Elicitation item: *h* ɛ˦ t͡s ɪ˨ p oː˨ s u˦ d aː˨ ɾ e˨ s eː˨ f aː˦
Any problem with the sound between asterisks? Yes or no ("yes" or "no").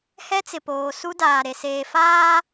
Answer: no